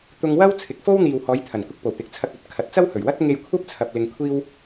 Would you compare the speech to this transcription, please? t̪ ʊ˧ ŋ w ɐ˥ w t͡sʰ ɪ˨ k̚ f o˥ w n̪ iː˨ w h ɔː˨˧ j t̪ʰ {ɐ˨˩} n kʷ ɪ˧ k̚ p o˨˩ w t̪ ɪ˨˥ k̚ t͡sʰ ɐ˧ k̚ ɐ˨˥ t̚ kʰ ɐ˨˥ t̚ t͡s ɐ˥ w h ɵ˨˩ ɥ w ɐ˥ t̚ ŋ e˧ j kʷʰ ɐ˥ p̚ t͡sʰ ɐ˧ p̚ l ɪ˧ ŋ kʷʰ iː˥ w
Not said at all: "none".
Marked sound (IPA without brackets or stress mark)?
ɐ˨˩